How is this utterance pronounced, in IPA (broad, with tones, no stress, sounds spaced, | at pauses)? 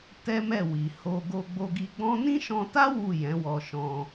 t ɛ˦ m ɛ˦˨ w i˨ h o˧ ɡ o˧ ɡ͡b o˧ ɡ i˧ ɡ͡b ɔ̃˦ n ĩ˦ ʃ ɔ̃˧ t a˦ w u˦˨ j ɛ̃˨˦ w ɔ˧ ʃ ɔ̃˧